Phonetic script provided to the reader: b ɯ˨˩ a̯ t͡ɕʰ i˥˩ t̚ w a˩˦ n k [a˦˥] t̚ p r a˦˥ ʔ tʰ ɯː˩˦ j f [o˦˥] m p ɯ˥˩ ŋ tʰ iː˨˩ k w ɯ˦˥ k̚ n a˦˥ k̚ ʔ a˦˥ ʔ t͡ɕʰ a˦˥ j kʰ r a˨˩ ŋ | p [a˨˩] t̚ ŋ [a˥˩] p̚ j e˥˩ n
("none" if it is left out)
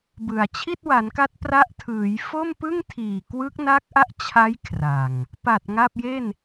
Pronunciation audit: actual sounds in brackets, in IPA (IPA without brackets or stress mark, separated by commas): a˦˥, o˥˩, a˨˩, a˥˩